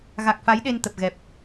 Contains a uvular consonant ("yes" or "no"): no